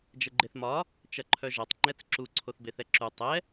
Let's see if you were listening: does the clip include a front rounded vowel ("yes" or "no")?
yes